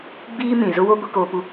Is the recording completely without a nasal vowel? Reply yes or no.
no